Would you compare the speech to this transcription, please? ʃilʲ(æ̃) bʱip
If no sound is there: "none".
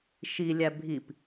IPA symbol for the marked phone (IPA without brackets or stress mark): æ